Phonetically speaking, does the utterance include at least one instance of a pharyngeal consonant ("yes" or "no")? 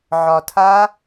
yes